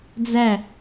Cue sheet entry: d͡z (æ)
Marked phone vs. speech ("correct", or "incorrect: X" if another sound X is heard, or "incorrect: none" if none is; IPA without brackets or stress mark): correct